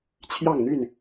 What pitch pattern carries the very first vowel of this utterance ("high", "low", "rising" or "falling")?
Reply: falling